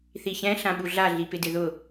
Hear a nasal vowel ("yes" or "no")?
yes